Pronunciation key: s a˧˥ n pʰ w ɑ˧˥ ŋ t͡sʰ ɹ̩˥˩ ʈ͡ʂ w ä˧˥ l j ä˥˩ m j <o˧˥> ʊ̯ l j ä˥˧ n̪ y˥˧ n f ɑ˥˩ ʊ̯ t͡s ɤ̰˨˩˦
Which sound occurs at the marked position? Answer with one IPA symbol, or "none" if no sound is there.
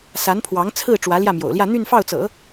o̰˨˩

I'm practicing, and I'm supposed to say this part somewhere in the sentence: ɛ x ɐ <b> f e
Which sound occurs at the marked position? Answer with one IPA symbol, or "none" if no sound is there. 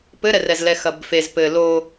b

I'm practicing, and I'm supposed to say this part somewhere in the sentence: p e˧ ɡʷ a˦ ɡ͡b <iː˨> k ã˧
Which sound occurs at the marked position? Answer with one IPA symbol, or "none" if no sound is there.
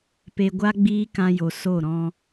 iː˦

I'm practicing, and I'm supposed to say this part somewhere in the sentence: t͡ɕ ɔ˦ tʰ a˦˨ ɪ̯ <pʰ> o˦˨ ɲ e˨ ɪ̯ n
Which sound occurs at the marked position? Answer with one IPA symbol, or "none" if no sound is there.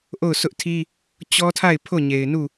pʰ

